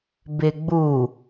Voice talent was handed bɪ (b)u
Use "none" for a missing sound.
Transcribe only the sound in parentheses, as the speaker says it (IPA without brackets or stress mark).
ɡ͡b